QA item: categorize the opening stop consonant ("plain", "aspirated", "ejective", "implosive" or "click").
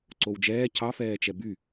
click